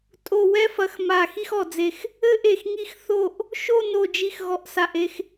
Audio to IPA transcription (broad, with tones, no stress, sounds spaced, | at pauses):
tʼ o˧˩ w ɛ˥˧ f ɐ˧˩ x m a˧˩ x i˥˧ x ɔ˧˩ d͡z e˧˩ x | ɘ˥˧ ʔ e˧˩ x ŋ i˥˧ x θ o˥˧ ʔ | ʃ o˥˧ n o˧˩ d͡ʒ i˧˩ x ɣ ɔ˧˩ ʔ s a˧˩ ʔ e˥˧ x